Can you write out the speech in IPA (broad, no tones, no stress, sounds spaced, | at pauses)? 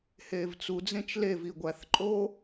h eː v t͡s u d͡z ẽ t͡ʃ l e v iː ɡʷ æ θ ǃʼ oː